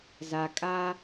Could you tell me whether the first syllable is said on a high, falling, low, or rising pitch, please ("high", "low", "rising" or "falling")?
low